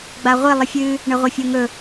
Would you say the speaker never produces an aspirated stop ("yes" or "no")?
yes